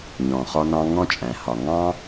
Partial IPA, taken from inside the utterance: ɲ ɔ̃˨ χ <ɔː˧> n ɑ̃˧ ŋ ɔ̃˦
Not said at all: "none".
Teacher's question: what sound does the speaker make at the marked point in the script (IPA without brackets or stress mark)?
ɔ˧